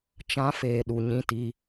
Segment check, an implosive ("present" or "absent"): present